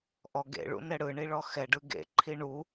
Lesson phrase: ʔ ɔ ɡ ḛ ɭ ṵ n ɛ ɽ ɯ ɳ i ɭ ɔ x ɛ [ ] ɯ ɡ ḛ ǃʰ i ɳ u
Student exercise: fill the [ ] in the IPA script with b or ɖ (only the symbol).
ɖ